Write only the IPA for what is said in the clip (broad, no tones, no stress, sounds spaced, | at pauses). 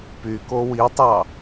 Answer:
p y k o w i tˤ ɑ